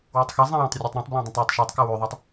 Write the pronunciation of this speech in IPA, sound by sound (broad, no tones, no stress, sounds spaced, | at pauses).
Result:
w ɛ tˤ x ɛ zˤ ɛ̃ w õ tˤ rʲ ʉ tˤ ɾ õ tˤ b l ã dˤ ɛ̃ tˤ w ɛ tˤ ʃ ɛ tˤ k ɘ w ʉ ðˤ ɑ tˤ